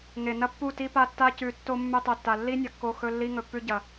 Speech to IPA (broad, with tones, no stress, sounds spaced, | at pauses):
ŋ e˨ n ɐ˦ pː u˦˨ t i˦ p a˦ tː a˦ c ʉ˨˦ tː o˧ mː ʉ˧ tˤ ɐ˧ tː a˨ lː i˦ nʲ ɐ˨ kː o˨ x ɵ˧ lː i˧ ŋ ɵ˨ pː ʉ˧ ɟ ɐ˨